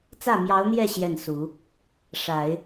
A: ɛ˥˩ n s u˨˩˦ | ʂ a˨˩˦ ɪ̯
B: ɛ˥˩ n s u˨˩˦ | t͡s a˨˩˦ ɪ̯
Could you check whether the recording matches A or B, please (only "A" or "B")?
A